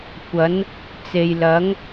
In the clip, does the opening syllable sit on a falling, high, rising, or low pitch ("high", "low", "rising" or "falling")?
rising